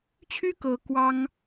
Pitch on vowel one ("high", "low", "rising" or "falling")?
high